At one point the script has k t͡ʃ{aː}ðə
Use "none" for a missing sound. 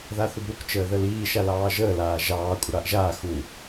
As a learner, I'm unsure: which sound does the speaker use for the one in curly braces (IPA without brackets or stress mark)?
əː